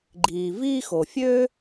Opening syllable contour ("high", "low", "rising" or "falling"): low